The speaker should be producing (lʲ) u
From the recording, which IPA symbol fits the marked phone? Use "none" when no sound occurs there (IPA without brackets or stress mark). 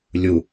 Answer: lʲ